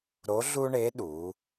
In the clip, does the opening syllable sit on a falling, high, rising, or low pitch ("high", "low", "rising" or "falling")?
rising